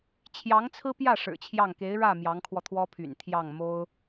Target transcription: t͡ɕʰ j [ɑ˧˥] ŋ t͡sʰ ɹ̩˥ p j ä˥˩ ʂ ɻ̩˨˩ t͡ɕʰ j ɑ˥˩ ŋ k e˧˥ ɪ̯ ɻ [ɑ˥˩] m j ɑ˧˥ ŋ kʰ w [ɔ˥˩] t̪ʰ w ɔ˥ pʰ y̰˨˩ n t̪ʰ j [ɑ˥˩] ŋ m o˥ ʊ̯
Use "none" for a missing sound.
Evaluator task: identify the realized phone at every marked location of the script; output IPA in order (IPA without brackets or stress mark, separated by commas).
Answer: ɑ˧˥, ä˥˩, ɔ˧, ɑ˥˩